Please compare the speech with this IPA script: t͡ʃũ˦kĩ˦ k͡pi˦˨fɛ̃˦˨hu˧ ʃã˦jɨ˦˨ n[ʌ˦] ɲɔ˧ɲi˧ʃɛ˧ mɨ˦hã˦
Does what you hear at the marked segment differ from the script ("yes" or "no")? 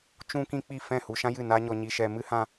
yes